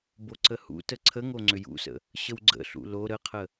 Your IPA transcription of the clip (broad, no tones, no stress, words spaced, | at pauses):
boǀəhṵtə ǀʰəŋo ŋ͡ǀʏjṵsə̰ | ɕəwɡ͡ǀə̰ɬṵ lo ɾəqʰə